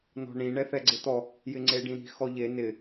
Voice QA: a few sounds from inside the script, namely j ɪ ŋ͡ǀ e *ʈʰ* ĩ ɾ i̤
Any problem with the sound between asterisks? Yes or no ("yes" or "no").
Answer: yes